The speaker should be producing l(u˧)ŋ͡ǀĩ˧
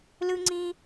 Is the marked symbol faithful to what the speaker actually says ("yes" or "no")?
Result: no